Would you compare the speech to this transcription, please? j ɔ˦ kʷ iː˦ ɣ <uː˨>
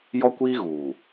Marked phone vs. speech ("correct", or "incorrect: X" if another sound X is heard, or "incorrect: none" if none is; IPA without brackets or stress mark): correct